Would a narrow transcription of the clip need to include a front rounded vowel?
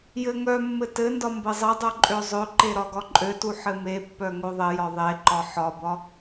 yes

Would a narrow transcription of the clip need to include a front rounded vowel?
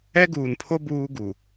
no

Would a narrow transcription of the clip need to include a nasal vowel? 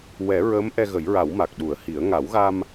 no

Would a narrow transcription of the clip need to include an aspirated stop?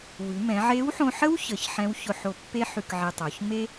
no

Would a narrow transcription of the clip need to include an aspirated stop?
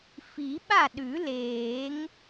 no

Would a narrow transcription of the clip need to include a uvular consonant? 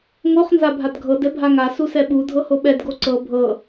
yes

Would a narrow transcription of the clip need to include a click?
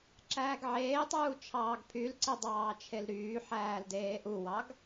yes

